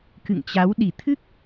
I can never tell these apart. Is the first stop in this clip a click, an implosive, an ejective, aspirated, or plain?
plain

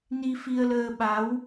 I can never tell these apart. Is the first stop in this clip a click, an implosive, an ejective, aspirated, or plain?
implosive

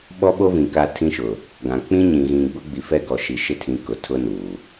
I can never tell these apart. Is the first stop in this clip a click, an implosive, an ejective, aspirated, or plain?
implosive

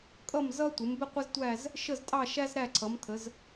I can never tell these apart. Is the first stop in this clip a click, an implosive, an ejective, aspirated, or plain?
ejective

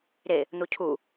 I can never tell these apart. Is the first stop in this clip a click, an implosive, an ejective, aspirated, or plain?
aspirated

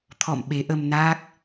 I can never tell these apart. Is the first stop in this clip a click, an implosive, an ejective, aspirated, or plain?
aspirated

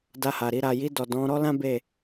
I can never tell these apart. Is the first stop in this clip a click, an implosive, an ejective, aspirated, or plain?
plain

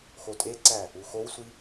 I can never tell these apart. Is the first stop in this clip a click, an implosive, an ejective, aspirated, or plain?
ejective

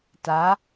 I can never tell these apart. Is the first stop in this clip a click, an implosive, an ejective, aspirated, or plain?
plain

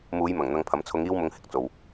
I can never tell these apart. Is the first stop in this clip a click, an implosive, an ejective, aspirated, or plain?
aspirated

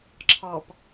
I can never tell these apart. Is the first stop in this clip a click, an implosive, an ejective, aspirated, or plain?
click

